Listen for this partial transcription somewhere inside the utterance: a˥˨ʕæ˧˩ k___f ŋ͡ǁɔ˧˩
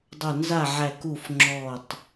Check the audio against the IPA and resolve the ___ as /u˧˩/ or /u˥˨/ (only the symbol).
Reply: u˧˩